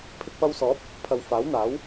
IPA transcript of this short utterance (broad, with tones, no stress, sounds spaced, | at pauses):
pʰ ɪ˧ k̚ p ɐ˧ w s ɔː˨˥ p̚ | pʰ ɐ˨ w f aː˨˥ w n̪ aː˨˥ w